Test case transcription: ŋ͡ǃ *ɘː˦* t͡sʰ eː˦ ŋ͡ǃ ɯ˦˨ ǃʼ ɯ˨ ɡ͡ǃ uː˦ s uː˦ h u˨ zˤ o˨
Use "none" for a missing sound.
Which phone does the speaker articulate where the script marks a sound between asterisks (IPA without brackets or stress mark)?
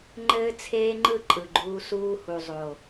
ɘː˦